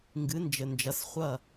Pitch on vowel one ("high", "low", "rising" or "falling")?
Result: rising